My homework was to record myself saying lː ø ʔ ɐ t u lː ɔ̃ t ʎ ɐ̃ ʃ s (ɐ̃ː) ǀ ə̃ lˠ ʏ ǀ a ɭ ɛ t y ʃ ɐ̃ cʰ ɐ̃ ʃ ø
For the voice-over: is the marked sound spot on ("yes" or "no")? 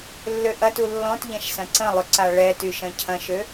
no